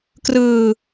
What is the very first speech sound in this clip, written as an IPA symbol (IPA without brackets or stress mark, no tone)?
k